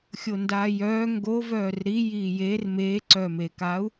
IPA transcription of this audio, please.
xʲ o n d aː j œː ŋ ɡ o v œː r ɾ i j iː j e r m eː ǀ œː m eː k aː u̯

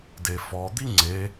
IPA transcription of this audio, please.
d e f ɔ d̪ i ŋ͡ǀ e

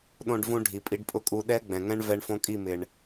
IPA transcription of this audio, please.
ɗ õ˧ ɖ v ũ˧ ɖʱ i˨ pʼ i˧ ɖ pʼ ʊ˦ kʼ u˧ ɗ ɛ˦ ɡ͡b ɛ̃˨ ŋ ɛ̃˦ ɳ v ɛ˧ ɳ f õ˧ kʼ i˦˨ m ɪ˨ ɳ

